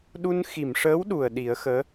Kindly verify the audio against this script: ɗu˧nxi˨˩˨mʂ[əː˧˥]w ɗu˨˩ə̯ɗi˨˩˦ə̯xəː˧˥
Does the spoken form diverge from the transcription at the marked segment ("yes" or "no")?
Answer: no